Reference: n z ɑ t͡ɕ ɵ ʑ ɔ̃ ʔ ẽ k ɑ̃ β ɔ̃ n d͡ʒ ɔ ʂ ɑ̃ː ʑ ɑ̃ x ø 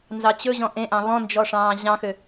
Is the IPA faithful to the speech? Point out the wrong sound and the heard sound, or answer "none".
k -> ʔ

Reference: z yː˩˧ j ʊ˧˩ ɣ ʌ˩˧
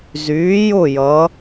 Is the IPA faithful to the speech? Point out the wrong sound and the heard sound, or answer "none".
ɣ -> j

